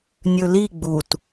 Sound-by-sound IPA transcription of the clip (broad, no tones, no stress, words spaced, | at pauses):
nʲɵli ɡ͡but